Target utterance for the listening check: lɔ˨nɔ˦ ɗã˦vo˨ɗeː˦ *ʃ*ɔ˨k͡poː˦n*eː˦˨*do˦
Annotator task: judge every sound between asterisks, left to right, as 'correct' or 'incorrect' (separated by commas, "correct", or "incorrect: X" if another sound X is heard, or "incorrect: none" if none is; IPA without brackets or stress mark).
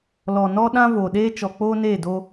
incorrect: t͡ʃ, correct